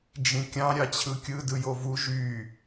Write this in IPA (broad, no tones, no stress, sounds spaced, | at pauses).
d͡ʒ ĩ kʲ ɑ̃ ɾʲ ɑ t͡ɕʰ ɯ kʲ ɯ d ɯ j o v u ʒ y